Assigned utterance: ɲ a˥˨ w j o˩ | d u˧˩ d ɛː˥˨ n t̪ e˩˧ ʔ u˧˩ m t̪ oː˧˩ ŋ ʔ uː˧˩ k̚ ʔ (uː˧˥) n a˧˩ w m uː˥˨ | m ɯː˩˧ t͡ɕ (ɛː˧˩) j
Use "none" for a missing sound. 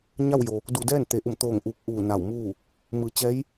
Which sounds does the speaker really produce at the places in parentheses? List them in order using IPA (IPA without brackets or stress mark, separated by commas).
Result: uː˧˩, ɛː˧˥